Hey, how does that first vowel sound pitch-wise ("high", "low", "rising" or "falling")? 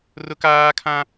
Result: high